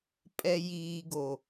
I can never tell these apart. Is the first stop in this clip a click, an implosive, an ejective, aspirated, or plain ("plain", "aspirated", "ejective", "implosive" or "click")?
ejective